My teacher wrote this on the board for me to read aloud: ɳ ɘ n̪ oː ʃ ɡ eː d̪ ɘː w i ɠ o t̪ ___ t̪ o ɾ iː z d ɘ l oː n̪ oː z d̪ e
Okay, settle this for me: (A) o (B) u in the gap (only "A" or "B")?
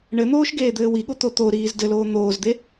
A